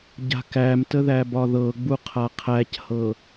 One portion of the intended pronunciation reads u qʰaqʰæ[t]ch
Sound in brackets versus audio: incorrect: none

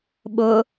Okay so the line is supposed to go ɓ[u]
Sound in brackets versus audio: incorrect: ʊ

